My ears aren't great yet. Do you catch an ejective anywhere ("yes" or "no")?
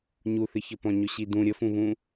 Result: no